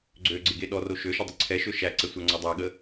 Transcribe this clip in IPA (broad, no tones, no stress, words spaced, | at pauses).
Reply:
ɡ͡ǀøɡ͡ǀɪɡe ɗɔro ʃøʃədˤə ǀʰɛʃø ʃæǀɛsʷæŋ͡ǀɔ dˤæɠə